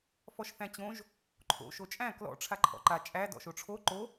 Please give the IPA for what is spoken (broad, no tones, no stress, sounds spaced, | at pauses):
f ɔ ʃ θ æ̃ t͡ɕ õ ʒ | ǃʰ o̰ ʃ o t͡ʃʼ æ̃ k l ɔ̰ ʈ͡ʂʰ a ǃʰ ɔ̰ ǃ a t͡ʃʼ æ d ɔ̰ ʃ o ʈ͡ʂʰ o ǃ o